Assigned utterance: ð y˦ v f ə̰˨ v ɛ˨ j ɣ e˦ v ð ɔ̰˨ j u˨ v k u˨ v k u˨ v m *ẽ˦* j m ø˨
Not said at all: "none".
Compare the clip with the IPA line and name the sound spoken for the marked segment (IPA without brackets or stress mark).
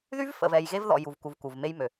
e˦